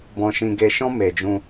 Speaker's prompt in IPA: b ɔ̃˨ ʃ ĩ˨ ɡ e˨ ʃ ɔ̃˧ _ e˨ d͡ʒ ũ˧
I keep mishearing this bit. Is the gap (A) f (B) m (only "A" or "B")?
B